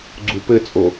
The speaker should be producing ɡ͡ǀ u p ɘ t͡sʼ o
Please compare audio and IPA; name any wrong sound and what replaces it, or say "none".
none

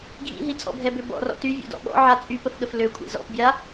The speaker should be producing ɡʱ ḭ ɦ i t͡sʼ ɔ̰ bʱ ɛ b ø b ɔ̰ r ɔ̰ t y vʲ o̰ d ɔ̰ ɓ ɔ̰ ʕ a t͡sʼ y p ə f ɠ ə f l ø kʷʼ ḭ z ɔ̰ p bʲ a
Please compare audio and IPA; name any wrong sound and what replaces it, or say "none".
none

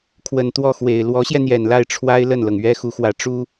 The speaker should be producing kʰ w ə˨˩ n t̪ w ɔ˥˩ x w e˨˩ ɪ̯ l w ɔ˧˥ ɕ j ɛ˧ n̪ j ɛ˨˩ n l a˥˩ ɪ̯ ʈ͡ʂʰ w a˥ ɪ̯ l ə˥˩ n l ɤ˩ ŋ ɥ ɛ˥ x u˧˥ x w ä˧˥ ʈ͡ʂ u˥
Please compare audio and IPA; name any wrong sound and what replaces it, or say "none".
none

